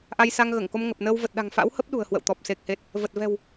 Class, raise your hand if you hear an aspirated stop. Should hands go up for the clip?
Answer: no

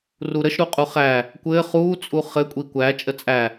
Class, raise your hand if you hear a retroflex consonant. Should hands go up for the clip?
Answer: no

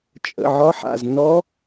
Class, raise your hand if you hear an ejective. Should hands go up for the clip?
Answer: yes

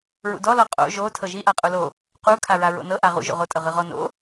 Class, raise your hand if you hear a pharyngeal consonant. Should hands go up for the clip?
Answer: no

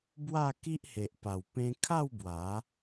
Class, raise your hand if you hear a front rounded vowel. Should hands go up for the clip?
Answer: no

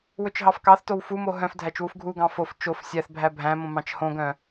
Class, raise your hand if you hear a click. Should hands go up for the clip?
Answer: no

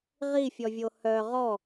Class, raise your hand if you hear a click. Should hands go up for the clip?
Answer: no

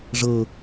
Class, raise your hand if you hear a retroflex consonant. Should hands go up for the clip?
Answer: yes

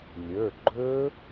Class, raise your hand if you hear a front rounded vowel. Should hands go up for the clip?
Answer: no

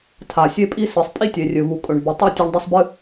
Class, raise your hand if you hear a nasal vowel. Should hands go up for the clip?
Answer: no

